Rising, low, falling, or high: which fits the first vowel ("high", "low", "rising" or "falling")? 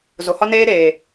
low